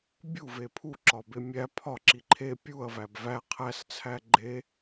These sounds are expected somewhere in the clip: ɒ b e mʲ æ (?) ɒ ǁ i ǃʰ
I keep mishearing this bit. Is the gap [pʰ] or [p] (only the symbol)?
pʰ